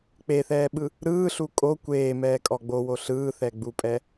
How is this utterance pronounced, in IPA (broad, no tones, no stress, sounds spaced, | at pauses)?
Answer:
k͡p e θ ɛː ɓ ɯ | ɾ ɯː ɬ u kʼ o kʷ eː m ɛː kʼ ɔ ɡ͡b o w o ɬ ɯː θ ɛ ɡ͡b u pʼ ɛ